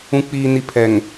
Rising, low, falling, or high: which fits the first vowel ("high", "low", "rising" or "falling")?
low